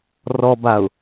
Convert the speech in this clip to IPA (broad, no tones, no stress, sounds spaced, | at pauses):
r ɔ b a ʊ̯